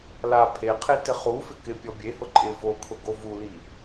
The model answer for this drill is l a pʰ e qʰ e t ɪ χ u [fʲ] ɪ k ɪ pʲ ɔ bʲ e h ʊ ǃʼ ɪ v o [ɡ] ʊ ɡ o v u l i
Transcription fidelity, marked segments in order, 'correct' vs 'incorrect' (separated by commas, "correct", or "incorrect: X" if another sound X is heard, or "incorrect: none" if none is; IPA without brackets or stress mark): incorrect: f, incorrect: kʰ